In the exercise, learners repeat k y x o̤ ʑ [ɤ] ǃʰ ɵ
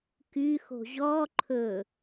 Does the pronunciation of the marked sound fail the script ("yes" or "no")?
yes